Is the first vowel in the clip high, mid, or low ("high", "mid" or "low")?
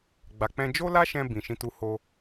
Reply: low